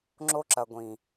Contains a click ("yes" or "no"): yes